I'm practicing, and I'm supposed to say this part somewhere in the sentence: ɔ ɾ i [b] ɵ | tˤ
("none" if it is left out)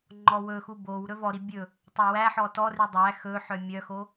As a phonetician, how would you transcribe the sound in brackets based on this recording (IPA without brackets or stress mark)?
bʲ